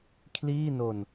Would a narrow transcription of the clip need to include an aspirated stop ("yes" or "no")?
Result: yes